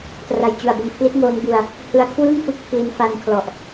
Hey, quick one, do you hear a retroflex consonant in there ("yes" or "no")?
no